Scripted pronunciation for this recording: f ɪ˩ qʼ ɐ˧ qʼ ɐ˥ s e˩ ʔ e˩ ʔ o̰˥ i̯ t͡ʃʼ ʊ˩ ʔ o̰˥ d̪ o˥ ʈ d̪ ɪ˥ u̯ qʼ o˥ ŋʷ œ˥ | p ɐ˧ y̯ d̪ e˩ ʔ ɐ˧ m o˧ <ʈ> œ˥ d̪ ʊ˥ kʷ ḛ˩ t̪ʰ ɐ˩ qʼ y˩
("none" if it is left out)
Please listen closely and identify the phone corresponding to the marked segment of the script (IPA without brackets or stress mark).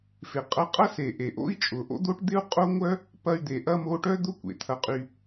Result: ʈ